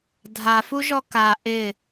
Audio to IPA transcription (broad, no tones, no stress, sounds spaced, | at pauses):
dʱ a f u ʒ ɔ k a ʔ ɪ